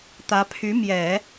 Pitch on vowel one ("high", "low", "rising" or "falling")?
rising